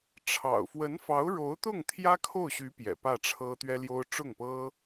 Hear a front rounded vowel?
yes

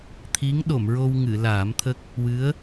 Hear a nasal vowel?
no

